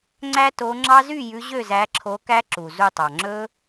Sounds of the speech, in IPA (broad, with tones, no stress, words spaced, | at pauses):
ŋ͡ǀæ˦ to˨˦ ŋ͡ǁɑ˦zy˥˨jʉ˨˦ ʑø˥˨zæ˨˦ǁʰo˨˦ kæ˦ǁu˩zu˧˩tˤɑ˩ ŋ͡ǁɵ˦